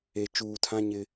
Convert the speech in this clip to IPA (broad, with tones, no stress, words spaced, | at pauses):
e˨ t͡ʃuː˨tʰã˦ ɲɪ˦